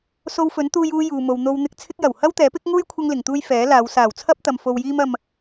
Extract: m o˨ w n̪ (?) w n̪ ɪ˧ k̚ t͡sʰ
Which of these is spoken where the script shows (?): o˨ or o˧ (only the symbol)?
o˧